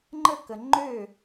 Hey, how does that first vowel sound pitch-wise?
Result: falling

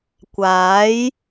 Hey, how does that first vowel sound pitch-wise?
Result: rising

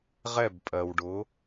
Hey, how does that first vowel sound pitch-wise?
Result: falling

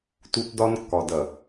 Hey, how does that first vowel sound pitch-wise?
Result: high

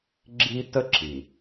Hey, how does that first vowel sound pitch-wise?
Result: high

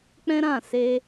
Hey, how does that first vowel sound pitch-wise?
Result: high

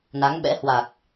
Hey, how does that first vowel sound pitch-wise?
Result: rising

